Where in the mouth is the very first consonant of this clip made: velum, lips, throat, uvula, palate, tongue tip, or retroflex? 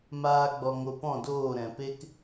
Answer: lips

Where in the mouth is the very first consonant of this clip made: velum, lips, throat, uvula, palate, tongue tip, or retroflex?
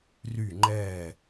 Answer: tongue tip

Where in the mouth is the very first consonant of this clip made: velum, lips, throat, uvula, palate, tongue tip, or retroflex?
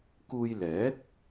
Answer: velum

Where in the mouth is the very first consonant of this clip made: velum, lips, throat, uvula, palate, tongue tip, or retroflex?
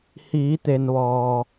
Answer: throat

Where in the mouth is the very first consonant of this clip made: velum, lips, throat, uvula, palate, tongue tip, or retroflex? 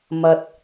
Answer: lips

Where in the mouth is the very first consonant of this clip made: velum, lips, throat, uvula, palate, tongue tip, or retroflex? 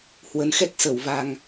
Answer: throat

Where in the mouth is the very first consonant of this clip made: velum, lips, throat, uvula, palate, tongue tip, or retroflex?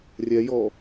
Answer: tongue tip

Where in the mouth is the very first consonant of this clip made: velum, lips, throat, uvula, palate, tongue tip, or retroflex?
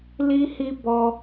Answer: tongue tip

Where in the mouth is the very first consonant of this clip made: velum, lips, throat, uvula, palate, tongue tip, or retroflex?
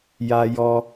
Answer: palate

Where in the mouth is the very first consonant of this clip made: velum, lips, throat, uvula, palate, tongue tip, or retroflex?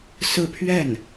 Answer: tongue tip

